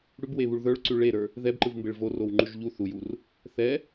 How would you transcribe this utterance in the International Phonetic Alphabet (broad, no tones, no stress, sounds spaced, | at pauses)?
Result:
ɽ ʉ b w e β u ɭ ð ə˞ ɭ ǀ ʉ ɭ e ɾ ə˞ | ð ɛ b ǃ ɯ v m b e ɭ v o r o w ŋ͡ǃ ʉ ʒ ʎ u θ u j u r | θ ɛ